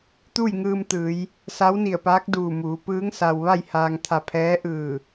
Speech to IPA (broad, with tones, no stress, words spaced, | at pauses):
t̪uː˥˨jŋɯː˧mt̪ɯː˩˧j | sa˧˥wni˧˩ə̯paː˧˥k̚ duː˧˩muː˩˧ pɯː˧˥ŋ sa˧w ʋa˥˨jhaː˧ŋt̪ʰa˧pʰɛː˧˥ ʔɯː˧˩